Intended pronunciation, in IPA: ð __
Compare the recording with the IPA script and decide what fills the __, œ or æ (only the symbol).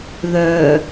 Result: œ